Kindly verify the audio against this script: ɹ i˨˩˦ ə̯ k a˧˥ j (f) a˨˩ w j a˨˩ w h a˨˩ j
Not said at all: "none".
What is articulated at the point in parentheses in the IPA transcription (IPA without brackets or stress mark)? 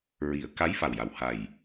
f